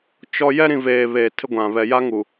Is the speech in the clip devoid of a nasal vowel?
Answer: no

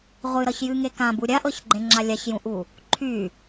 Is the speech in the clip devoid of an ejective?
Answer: yes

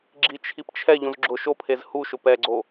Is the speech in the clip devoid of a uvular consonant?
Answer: yes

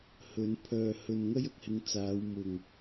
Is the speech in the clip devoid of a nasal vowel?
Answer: yes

